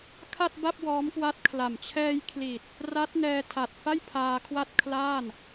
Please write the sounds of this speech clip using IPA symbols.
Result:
kʰ a˥˩ t̚ b a˥˩ p̚ w ɔː˦˥ m k w a˦˥ t̚ kʰ l a˨˩ m t͡ɕʰ ɛː˧ j kʰ l i˨˩ t̚ | r a˦˥ t̚ n ɛː˧ tʰ a˨˩ t̚ f a˥˩ j pʰ aː˧ kʰ w a˥˩ t̚ kʰ l aː˥˩ n

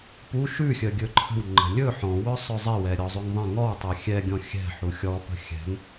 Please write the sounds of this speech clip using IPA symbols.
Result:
p u ʃ ʉ xʲ œ ɡʲ ɵ ǃʰ ə̤ w ŋ͡ǃ ə̤ lʲ ɵ ħ ɔ̃ w œ sˤ œ zˤ ɛ w ɛ ɾʲ ɔ zˤ ʉ ŋ ðˤ ɛ̃ ŋ ɔ w tˤ ɛ xʲ ɛ ɡʲ ɔ̃ xʲ ɛ̤ ħ u xʲ ɔ p ə̤ xʲ ɛ̤ ŋ

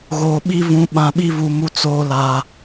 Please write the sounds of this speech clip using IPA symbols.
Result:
ɣ oː˨ ɓ i˦ v ũ˨ ɓ ã˨ ɓ i˦ v u˨ m u˦ t͡s oː˦ l a˨

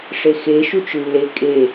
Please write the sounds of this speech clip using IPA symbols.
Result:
ʂ e x e ʃ u t͡ʃ lː e kʼ e

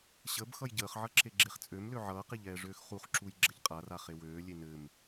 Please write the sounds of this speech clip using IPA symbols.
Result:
ɕ ə b x ʌ j ɟ əː χ ʕ ʌ ǁ e ɡ͡ǁ e χ t͡sʼ ø m l ø ʕ ʌː q e ʎ ɛː ʐ øː x χ u χ ǁ u j ɡ͡ǁ ə ʎ qʼ a r a χ e w øː lʲ e n ɘ m

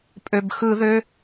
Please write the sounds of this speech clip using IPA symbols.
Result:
pʼ ø˩ b x ɯ˧˩˧ ð ø˩˧˩

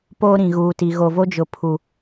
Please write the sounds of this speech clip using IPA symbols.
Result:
p oː˦ ɾ ĩ˨ ɣ uː˨ t i˨ ɣ o˨ v o˦ d͡ʒ ʊ˨ pʰ u˨

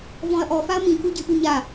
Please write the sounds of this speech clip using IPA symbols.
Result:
v ɔ̃ ɐ̯ ʔ ɔ f a ɐ̯ m ĩ k u ɟ ɨ ʔ u ɲ a

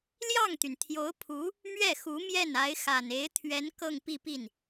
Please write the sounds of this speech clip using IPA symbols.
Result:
l j ɑ˥˩ ŋ t̪ y˩ n t̪ʰ j o˧˥ ʊ̯ pʰ u˧˥ | m ɥ ɛ˥˩ x u˧˥ m j ɛ˥˩ n a˧˥ ɪ̯ x a˨˩ n e˧˥ ɪ̯ t̪ʰ ɥ ɛ˧˥ n k ɤ˥˧ ŋ p i˥˧ p i˥˩ n

